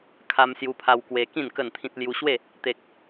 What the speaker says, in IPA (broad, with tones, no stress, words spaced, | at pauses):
kʰa˧msju˧pʰa˧w kwe˧kĩ˥˧n kə˥˧nt̪ʰĩ˦t̚ lju˧ɕwe˥˧ | t̪e˦k̚